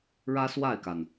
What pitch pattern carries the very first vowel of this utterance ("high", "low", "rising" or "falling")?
high